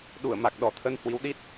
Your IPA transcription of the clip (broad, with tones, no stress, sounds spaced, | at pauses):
ɗ u˧˩ ə̯ m a˨˩ k̚ ɗ ɔ˧˩ t̪ʰ ə˧ n h w i˨˦ w ɗ i˦˥ t̚